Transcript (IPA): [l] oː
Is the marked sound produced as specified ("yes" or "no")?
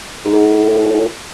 yes